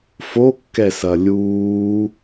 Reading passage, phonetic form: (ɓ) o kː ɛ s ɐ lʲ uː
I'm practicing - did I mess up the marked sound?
yes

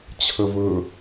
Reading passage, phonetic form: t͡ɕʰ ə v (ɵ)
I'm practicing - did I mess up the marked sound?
no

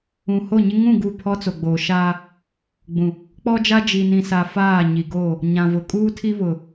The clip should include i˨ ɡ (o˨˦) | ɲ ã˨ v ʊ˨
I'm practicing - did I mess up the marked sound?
yes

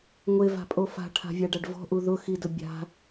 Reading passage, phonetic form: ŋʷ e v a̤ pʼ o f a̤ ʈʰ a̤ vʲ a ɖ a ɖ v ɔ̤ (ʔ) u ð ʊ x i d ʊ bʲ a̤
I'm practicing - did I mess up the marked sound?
no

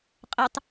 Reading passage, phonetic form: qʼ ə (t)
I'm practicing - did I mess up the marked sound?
yes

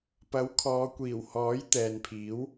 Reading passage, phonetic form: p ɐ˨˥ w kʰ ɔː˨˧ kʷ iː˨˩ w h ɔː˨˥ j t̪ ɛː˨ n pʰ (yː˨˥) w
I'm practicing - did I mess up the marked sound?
yes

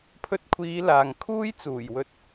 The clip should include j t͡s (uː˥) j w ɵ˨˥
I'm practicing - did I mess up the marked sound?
yes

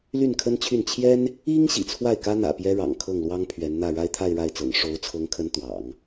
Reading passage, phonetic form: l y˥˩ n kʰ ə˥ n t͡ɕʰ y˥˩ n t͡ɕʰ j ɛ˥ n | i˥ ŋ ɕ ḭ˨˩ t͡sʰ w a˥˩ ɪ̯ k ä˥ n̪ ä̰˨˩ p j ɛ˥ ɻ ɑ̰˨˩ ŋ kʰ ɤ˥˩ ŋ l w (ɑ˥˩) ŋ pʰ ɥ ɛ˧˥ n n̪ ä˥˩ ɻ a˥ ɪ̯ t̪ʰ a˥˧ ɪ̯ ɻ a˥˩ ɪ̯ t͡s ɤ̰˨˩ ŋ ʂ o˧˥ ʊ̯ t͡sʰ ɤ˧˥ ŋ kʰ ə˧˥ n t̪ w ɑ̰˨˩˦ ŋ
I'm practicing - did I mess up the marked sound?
yes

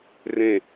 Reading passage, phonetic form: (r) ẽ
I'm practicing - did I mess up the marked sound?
no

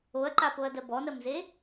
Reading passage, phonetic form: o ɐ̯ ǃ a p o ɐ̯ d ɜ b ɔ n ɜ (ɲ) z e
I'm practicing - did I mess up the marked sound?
yes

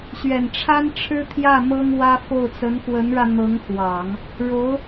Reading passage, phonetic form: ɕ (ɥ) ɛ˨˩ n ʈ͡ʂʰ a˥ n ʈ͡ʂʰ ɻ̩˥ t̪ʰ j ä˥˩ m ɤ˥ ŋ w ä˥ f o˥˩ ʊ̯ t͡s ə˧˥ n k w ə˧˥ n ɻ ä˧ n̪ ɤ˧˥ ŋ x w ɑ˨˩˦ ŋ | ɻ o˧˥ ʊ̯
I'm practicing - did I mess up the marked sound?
no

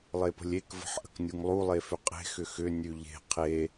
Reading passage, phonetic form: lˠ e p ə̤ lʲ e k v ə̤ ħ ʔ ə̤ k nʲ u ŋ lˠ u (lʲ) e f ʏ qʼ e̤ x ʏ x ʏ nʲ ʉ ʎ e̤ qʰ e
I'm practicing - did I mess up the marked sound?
yes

